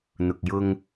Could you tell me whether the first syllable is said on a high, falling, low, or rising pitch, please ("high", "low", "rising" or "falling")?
low